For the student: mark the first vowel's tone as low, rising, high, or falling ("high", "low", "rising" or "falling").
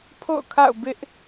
falling